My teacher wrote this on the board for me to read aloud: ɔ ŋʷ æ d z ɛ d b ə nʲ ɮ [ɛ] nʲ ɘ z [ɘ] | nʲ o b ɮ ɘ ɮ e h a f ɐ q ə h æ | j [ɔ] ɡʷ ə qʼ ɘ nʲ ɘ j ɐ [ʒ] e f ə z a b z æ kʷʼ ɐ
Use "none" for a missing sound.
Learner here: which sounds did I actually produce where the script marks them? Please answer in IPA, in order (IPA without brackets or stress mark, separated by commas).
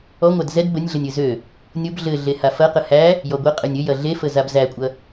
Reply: ə, ø, ɔ, ɮ